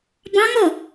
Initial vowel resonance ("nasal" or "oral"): nasal